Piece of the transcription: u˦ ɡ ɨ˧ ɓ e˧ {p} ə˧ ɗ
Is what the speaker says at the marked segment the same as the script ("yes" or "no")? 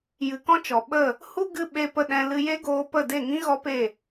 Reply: yes